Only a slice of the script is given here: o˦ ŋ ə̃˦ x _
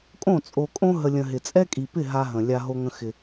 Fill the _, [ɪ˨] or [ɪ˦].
ɪ˦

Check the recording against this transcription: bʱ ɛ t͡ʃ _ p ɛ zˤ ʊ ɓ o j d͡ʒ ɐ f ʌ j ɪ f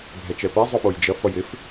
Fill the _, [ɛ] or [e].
ɛ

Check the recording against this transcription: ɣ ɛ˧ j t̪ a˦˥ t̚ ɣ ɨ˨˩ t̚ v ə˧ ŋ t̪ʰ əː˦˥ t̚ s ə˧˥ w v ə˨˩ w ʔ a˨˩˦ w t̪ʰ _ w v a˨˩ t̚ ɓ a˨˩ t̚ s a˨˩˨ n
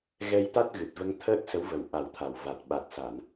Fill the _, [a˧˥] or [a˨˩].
a˨˩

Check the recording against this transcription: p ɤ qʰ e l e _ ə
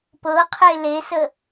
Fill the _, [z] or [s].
s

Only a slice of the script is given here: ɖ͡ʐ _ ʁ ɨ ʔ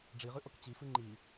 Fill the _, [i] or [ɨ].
i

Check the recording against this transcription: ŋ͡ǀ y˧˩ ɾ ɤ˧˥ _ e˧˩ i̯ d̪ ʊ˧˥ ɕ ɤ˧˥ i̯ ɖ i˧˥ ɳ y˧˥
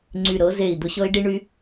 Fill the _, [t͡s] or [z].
z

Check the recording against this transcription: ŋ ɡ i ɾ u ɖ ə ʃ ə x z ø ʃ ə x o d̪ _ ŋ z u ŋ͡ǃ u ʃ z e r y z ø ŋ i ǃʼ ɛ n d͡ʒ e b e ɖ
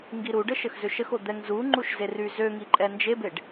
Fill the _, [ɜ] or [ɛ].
ɛ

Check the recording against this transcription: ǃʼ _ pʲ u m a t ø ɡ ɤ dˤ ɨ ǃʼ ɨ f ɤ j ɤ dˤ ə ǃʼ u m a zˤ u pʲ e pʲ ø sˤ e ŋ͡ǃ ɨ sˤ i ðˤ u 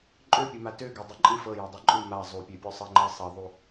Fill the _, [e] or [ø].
ø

